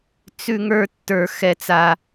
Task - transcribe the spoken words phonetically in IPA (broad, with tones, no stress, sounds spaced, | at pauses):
t͡s ʉ˦ ŋ ə˞˦ tː ə˞˦ x ɛ˦ t͡s a˦